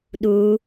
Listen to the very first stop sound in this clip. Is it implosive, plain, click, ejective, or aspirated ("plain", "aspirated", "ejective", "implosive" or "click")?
implosive